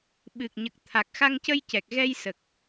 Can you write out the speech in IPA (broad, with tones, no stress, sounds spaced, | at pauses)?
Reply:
ɓ ɨ˨˩ k̚ ɲ ə˨˩ k̚ t̪ʰ a˨˩ k̚ x a˧ ŋ c ə˧ j c ɛ˨˩ k̚ ɣ ɛ˧ j s ə˨˩ k̚